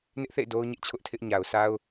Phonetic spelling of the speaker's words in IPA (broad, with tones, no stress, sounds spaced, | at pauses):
n ɪ˦ ʔ θ ḛ˦˨ ɪ̯ d o˦ ʊ̯ ɲ ɪ˦ ʔ t͡ɕʰ ʊ˦ ʔ tʰ ɪ˦ ʔ ɲ a˨ ʊ̯ sʰ a˦ ʊ̯